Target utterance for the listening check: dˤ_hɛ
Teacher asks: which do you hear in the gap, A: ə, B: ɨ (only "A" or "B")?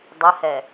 A